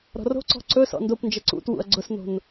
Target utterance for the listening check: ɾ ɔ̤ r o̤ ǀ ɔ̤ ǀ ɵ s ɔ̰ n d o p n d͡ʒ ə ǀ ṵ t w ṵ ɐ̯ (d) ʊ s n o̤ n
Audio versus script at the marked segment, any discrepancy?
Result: yes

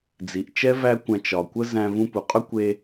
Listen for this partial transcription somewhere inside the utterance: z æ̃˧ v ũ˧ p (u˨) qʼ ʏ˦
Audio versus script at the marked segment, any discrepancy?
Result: no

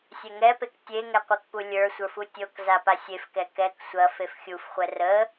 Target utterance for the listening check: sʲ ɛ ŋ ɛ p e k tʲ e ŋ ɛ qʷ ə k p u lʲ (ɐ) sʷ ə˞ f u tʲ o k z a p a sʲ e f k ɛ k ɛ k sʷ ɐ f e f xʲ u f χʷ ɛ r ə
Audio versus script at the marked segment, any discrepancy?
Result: yes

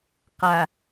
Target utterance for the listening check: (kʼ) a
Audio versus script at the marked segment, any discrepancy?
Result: yes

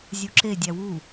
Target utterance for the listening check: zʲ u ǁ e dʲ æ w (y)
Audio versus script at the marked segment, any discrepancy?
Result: yes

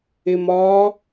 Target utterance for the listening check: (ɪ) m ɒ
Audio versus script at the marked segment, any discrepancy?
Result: no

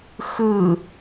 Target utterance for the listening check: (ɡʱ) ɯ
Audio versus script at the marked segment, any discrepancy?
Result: yes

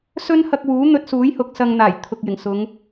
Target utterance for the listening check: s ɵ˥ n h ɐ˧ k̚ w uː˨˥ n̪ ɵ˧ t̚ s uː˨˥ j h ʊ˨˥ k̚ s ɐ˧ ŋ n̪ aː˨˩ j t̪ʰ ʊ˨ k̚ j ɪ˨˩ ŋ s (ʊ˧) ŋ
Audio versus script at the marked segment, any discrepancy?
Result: yes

